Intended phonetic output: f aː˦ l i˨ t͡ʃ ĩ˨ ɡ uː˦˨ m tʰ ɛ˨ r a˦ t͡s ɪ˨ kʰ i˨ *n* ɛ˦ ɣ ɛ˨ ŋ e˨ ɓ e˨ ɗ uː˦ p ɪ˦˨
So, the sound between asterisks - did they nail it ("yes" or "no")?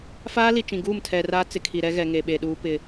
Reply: no